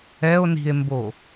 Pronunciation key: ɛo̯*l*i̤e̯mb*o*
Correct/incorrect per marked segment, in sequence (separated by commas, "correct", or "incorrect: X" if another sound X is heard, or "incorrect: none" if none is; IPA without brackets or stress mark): incorrect: n, correct